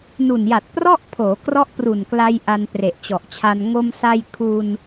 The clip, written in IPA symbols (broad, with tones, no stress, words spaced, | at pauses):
nu˨˩nja˨˩t̚ prɔ˥˩ʔpʰoː˩˦krɔ˦˥ʔ pru˨˩nkla˧j ʔa˧npre˨˩ʔt͡ɕɔ˨˩ʔt͡ɕʰa˧n ŋo˧msa˧j kʰu˧n